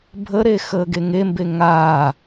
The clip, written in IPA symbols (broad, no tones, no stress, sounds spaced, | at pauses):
bʱ ə ɾ e x əː ɡ e ŋ e m b e ŋ aː